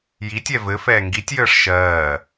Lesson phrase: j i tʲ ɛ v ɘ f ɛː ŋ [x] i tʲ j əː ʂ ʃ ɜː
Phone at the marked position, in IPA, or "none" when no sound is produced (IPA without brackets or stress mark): ɡ